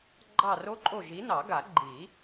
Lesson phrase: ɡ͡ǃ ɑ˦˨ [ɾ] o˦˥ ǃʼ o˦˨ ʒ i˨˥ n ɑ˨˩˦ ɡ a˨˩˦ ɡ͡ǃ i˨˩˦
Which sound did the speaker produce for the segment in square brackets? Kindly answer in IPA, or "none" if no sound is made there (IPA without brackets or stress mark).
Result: r